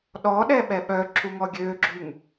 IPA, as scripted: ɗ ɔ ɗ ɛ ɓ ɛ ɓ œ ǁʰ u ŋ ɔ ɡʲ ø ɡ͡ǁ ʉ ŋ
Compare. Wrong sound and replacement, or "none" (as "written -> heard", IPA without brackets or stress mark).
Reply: none